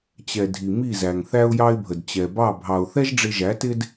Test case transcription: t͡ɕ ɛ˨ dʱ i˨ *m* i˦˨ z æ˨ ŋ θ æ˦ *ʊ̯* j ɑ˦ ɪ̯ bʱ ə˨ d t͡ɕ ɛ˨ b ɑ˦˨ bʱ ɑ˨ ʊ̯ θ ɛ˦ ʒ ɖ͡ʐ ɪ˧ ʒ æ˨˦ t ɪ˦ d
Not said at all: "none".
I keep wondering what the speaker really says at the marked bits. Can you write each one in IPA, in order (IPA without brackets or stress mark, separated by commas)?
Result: m, ʊ̯